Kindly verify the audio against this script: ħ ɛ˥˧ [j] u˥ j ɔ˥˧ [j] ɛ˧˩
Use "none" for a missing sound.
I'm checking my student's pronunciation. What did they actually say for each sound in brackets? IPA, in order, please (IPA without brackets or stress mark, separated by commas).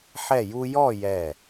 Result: j, j